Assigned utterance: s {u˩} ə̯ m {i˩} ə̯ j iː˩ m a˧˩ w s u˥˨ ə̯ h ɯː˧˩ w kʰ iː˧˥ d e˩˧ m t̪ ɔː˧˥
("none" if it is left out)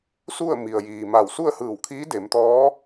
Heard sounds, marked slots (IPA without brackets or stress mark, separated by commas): u˥˨, i˩